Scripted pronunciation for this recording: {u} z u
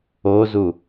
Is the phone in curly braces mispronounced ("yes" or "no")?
yes